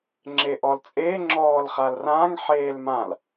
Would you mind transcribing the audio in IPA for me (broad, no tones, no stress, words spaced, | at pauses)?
ŋ͡ǁeʔɔlt͡sʼeː ŋ͡ǁɔːlχalrãŋ ħeːlmãl